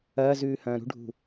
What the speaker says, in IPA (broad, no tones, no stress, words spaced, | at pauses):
ɐːzʉːhɐ̃ː ɾṳɖʱṳ